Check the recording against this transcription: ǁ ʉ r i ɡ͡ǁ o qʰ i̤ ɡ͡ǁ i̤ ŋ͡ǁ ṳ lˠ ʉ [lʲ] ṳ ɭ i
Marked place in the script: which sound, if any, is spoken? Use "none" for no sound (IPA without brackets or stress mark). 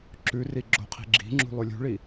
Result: lʲ